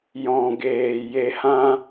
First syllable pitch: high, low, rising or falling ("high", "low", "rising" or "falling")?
low